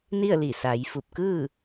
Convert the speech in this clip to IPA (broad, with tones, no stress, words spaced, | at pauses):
ni˥˨ə̯li˧˩ sa˩˧j fu˧˩p̚kɯː˥˨